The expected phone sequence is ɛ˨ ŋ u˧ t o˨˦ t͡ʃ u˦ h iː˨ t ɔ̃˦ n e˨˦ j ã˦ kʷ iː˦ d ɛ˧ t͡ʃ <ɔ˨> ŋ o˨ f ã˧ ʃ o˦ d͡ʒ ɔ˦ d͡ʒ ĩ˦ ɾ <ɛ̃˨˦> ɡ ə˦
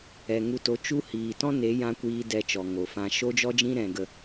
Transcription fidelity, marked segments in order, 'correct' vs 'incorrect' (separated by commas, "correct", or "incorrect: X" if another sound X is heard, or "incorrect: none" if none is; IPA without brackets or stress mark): correct, incorrect: ɛ̃˦